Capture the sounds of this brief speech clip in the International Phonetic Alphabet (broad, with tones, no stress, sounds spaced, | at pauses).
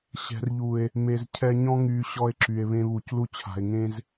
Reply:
ɕ ɛ̤˨ r ʎ u˨ e̯ | m e˨ z cʰ ɛ˧ ɲ ɔ̃˦ ŋ yː˨ ɕ ɔ˧ e̯ ǁ y˨ e̯ β ẽ˧ β u˨ c l u˧ t͡ɕʰ a̤˨ e̯ ŋ ẽ˧ z